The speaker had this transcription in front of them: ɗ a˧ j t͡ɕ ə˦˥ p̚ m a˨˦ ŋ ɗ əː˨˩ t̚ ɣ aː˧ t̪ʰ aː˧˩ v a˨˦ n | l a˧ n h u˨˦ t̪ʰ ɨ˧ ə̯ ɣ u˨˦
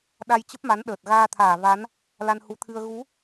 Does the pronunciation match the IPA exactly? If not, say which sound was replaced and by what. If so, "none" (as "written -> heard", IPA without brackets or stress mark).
ŋ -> n